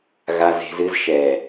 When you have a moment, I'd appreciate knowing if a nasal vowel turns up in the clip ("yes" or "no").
no